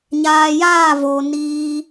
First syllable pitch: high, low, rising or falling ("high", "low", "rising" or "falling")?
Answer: low